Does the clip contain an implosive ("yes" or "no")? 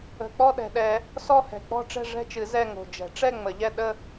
yes